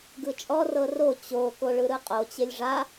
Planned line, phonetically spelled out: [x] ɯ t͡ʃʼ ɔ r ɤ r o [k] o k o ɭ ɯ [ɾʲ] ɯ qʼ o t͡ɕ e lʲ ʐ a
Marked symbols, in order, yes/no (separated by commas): no, no, no